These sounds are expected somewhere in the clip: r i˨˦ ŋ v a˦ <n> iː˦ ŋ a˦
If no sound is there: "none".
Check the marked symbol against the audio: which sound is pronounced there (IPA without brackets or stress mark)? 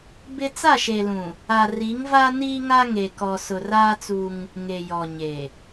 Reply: n